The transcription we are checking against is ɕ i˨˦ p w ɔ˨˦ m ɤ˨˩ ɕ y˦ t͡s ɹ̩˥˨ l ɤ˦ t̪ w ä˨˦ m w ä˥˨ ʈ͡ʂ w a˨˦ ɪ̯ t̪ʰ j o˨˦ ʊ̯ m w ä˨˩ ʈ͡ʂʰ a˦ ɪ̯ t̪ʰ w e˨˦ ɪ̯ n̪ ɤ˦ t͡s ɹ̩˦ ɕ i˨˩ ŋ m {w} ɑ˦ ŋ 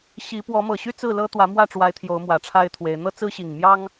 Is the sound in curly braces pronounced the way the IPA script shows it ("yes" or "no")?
no